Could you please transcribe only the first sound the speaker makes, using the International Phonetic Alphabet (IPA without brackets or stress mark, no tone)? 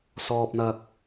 s